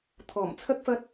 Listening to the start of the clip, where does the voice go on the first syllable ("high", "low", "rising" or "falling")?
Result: low